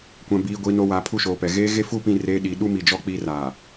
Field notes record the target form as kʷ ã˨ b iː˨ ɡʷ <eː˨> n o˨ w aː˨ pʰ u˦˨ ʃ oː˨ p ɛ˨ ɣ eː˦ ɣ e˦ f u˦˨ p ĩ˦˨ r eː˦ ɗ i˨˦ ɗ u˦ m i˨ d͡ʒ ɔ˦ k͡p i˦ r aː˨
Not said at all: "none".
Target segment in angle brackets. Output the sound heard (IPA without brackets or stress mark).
iː˨